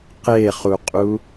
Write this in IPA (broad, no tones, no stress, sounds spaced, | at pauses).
q e χ u qʼ u